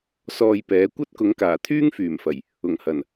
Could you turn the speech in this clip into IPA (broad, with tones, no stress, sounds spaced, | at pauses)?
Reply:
s ɔː˧ j p ɛː˨˥ kʷ ɐ˥ t̚ k ʊ˨˥ ŋ k aː˨˩ t̪ʰ yː˥ ŋ f yː˨˩ m f ɐ˨˩ j | ʊ˨˩ ŋ h ɐ˨˩ n